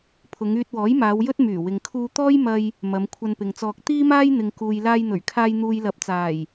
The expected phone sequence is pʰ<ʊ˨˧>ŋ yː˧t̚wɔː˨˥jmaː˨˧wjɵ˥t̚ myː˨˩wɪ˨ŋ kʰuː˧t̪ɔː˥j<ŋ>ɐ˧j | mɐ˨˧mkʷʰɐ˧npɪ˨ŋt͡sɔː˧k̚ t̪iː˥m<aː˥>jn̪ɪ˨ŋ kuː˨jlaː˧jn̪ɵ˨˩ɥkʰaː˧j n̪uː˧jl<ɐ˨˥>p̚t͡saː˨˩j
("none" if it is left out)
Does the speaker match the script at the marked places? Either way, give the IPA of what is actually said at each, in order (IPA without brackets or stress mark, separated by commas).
ʊ˨˧, m, aː˥, ɐ˨˥